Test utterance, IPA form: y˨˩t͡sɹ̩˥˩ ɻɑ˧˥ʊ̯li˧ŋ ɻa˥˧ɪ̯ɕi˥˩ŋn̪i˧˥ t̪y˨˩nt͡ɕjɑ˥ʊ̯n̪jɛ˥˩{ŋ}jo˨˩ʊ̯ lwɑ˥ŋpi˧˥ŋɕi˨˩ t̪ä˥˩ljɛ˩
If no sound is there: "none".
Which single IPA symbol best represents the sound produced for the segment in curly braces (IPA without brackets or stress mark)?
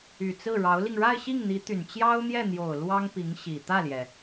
n̪